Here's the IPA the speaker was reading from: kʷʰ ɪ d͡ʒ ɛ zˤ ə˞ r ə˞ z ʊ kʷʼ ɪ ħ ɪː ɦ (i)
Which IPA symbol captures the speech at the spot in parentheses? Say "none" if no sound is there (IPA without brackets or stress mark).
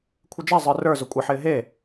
e